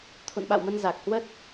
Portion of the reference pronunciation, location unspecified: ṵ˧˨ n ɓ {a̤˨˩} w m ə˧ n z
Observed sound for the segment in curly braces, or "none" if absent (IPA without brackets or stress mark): a̰˧˨